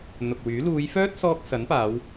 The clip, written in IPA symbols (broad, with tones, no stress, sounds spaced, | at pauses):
n̪ ʊ˨ k̚ w yː˨˥ l uː˨˧ j f œː˥ t̚ s ɔː˧ k̚ s ɐ˨˥ n p aː˨˧ w